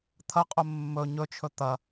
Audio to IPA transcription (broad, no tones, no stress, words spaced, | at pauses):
t̪ʰɐqʼɵ mːɵ ɲɵt͡ʃʰɵ t̪ɐ